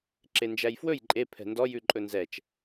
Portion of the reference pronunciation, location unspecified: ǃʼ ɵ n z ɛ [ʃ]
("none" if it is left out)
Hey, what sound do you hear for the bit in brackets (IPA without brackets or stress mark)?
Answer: t͡ʃ